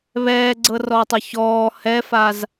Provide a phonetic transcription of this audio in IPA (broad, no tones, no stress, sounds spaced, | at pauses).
β ɛː ɡ͡ǀ ɤ r ɔː tˤ ɔ ç ɔː h ɛ f a z